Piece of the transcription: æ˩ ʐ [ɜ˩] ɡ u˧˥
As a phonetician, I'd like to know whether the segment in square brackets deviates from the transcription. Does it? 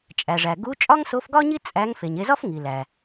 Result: yes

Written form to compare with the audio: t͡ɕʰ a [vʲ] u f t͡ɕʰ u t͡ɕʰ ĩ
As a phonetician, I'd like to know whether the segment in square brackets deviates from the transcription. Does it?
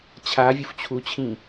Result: no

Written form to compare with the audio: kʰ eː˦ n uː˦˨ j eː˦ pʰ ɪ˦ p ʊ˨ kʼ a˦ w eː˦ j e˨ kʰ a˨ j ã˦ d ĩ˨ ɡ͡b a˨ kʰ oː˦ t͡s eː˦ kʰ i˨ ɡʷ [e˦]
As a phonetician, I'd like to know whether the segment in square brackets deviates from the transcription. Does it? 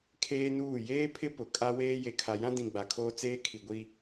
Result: yes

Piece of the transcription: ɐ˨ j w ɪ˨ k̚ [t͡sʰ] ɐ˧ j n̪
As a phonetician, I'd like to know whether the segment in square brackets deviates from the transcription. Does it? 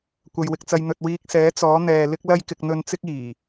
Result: yes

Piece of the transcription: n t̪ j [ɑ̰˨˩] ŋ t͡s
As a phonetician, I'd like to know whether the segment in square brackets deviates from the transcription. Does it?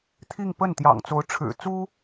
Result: no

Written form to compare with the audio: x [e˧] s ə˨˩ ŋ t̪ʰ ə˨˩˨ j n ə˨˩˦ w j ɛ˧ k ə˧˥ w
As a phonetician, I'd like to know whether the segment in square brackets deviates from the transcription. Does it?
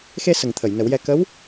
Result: no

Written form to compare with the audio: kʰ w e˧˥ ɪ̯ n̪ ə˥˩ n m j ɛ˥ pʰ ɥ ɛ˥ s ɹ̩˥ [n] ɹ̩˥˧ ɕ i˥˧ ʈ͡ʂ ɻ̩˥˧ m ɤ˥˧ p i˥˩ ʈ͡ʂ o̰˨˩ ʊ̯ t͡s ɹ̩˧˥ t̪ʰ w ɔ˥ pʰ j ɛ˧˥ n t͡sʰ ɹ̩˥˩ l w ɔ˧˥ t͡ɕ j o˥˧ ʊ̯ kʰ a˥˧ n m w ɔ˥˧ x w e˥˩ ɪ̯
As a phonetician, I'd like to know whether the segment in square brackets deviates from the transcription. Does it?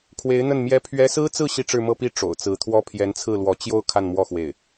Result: yes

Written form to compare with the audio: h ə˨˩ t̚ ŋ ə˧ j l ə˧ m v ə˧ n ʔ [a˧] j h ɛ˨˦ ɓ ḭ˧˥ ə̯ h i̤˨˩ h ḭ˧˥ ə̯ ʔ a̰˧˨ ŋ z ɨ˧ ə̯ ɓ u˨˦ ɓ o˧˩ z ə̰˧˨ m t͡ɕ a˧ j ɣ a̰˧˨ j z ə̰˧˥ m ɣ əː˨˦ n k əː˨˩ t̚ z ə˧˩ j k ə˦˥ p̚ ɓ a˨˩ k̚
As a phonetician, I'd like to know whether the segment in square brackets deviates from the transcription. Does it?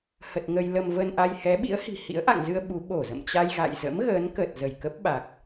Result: no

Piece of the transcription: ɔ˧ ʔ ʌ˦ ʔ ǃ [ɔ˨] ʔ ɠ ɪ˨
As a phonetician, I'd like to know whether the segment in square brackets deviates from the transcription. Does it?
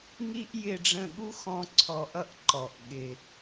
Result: no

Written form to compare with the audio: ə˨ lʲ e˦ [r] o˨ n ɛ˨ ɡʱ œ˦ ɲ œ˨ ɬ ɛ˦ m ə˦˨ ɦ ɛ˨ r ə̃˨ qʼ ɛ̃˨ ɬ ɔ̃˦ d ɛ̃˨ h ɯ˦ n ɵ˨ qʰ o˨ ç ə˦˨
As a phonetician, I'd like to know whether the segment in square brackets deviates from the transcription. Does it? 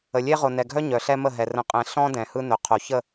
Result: yes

